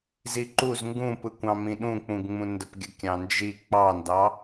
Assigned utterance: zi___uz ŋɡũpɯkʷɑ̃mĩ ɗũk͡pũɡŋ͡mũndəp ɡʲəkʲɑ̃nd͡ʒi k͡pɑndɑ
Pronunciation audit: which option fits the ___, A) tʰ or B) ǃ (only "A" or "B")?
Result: B